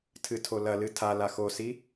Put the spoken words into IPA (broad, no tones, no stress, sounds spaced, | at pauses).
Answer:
tʰ ɨ tʰ o l ɐ l ɨ tʰ a l a x o s i